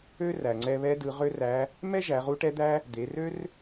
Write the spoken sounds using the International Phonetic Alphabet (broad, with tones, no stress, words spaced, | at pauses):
ø˥ræ˩ŋ͡ǀɛ˧ βɛ˧˥dɯ˩˧ʁø˥ræ˧˥ | mɛ˥ ʒæ˩˧ʁu˧˥ʈɛ˧˥d̪æ˥ | d̪e˩˧rø˥r